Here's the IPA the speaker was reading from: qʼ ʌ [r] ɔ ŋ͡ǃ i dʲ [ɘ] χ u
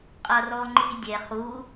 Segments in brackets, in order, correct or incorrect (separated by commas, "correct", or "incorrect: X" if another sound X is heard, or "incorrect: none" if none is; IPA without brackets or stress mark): correct, incorrect: ɛ